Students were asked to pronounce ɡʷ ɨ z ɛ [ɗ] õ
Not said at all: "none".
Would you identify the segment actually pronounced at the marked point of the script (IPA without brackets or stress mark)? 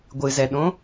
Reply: ɗ